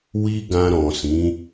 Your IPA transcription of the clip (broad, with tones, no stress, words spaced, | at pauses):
wi˧ ɡã˧ɾɔ̃˨sĩ˨˦